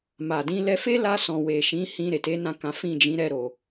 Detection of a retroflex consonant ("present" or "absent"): absent